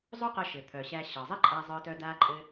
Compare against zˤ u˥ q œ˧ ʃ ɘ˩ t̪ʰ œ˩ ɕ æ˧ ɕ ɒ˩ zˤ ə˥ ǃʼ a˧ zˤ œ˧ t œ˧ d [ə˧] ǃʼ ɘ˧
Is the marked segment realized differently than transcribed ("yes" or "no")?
yes